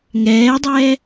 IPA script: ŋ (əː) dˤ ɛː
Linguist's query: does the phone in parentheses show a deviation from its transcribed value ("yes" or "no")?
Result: yes